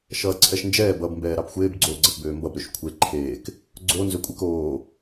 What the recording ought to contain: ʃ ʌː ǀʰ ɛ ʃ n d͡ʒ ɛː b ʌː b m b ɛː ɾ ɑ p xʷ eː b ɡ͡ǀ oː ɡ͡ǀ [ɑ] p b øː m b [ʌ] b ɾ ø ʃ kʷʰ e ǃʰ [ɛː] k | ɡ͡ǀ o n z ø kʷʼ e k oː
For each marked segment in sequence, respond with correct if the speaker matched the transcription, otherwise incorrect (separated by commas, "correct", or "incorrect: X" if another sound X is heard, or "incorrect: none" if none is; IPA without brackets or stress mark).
incorrect: ʌ, correct, incorrect: eː